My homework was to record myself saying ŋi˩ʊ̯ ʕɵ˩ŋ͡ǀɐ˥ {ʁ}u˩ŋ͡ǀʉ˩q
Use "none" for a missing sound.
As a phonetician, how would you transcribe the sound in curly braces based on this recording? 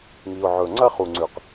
χ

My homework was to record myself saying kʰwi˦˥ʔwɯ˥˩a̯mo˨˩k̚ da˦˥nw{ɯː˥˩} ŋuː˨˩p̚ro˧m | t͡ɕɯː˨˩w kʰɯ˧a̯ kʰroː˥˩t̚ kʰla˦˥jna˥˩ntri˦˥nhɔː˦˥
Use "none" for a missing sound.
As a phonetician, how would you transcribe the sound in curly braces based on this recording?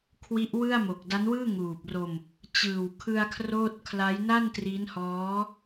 ɯː˥˩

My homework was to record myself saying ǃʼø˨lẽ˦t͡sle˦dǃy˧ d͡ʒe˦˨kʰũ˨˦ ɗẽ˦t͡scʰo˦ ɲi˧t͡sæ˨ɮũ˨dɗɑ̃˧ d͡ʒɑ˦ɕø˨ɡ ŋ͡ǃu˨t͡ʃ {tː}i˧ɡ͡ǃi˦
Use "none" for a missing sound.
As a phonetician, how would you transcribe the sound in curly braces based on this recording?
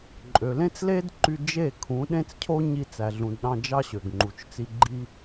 t͡s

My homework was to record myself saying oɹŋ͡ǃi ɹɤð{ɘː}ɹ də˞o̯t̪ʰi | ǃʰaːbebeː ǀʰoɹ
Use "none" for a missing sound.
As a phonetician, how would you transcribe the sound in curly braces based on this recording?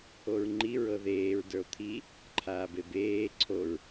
eː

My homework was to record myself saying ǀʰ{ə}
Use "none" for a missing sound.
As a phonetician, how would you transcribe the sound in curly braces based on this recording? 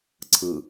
ɯ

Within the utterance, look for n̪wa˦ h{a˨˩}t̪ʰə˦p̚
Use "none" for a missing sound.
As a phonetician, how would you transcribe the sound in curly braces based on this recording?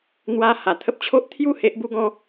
a˨˩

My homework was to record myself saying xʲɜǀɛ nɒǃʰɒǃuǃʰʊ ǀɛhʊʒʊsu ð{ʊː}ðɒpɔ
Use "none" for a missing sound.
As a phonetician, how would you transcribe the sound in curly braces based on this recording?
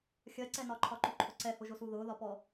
ʊː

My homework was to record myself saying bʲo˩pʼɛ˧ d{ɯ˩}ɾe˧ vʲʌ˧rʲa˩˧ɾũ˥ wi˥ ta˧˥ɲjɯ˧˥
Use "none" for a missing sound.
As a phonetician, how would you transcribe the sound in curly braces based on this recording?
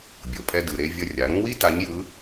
ɯ˩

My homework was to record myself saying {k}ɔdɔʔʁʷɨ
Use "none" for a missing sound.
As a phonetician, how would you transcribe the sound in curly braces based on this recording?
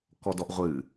k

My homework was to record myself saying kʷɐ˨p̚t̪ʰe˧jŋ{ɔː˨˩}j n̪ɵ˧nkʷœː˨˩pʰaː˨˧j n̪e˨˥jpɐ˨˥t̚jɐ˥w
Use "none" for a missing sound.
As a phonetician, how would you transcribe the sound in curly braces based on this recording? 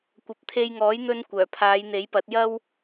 ɔː˨˥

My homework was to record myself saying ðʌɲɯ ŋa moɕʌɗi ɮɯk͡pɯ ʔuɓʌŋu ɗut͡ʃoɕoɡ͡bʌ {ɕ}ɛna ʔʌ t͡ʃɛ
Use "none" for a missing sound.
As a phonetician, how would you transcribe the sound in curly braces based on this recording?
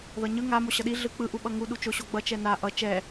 t͡ʃ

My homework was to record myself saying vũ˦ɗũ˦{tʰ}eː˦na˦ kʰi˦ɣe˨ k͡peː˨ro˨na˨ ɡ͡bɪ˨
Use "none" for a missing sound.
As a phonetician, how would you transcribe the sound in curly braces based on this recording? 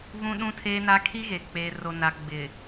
tʰ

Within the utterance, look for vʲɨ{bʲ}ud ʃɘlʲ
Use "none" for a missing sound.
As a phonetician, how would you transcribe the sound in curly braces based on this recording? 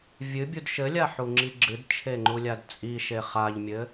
bʲ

